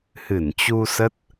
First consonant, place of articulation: glottal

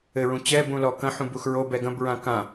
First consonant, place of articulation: alveolar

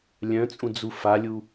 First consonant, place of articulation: alveolar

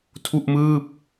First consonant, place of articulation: alveolar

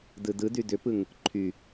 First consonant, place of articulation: alveolar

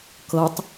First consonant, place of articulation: velar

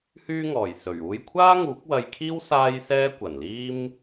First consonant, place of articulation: glottal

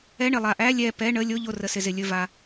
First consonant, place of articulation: retroflex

